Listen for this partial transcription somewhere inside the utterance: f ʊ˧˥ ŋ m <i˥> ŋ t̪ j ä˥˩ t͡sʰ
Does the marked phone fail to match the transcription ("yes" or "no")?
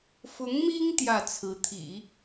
no